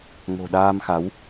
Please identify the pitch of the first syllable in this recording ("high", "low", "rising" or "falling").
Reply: low